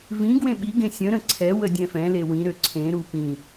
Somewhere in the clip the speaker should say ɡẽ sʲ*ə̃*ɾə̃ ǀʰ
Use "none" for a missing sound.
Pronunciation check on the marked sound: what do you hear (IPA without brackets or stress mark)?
ə̃